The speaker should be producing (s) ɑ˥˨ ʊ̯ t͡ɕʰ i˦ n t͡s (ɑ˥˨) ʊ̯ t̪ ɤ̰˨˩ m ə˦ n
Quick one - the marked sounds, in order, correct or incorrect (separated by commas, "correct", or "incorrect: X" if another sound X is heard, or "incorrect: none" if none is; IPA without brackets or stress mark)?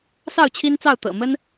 correct, correct